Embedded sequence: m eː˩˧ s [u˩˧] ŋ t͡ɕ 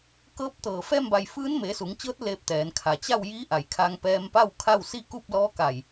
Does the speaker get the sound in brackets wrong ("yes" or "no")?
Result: no